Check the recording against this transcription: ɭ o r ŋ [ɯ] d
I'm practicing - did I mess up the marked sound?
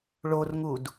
yes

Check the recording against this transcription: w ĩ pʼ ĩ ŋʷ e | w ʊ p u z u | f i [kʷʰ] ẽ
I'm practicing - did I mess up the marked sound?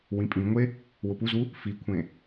no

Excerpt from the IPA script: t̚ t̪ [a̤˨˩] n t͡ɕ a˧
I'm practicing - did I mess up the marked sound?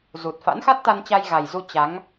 yes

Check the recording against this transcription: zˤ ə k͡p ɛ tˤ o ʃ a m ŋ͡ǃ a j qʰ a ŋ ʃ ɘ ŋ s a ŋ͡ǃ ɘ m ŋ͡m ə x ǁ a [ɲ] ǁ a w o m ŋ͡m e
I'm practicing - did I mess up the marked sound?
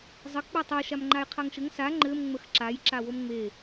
yes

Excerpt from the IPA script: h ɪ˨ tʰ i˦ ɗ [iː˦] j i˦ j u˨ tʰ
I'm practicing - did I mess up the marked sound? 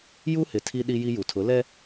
yes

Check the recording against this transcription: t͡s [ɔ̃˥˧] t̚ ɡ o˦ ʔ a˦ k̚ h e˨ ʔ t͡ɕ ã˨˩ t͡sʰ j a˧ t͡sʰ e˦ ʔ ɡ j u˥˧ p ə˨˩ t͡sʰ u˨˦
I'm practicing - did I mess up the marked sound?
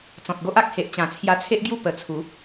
yes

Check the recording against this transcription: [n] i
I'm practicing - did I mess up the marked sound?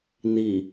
no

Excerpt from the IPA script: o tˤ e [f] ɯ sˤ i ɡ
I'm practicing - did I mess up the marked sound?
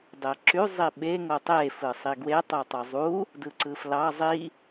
no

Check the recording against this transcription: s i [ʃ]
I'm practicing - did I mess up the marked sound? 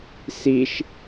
no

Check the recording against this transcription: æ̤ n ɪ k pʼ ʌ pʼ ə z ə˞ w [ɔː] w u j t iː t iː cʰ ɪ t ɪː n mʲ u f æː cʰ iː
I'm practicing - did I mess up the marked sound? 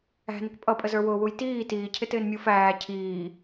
yes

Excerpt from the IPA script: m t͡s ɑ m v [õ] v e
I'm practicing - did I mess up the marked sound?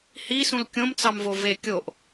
yes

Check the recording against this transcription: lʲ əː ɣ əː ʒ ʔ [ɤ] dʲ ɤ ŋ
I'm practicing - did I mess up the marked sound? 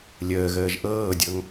yes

